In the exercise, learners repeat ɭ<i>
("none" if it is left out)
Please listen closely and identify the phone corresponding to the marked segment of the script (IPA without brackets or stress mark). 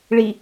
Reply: i